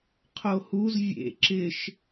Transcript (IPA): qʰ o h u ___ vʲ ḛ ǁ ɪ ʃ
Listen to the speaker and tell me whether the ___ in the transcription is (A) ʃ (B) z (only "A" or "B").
B